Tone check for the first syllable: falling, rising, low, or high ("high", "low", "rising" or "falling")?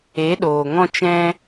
rising